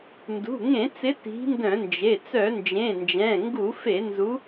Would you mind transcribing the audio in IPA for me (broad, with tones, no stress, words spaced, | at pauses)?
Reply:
ndṳ˩˧˩ŋẽ˧˩˧t͡sɪ˨˦ ti̤˨˦ndœ̃˧˩˧nd͡ʒe˩˧˩ t͡sœ˧˩˧nd͡ʒẽ˩˧˩nd͡ʒɛ̃˩˧˩ ŋɡu˧˩˧fe˧˩˧nzu˨˦